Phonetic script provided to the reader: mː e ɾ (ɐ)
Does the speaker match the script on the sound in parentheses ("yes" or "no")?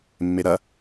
yes